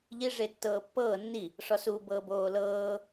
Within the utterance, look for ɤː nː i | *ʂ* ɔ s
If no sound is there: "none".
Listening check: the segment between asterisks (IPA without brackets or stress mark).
ʂ